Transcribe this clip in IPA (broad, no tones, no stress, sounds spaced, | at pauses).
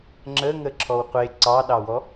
ŋ͡ǁ ə ŋ ə ǁʰ ɔ w qʷ e ǀ ɑ ɗ ɑ w ɔ